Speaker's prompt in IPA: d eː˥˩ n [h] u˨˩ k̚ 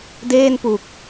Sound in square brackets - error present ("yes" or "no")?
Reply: yes